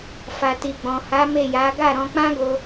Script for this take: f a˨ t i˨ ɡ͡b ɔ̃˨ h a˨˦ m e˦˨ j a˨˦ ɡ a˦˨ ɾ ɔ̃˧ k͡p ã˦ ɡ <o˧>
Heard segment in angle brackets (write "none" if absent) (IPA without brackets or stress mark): o˧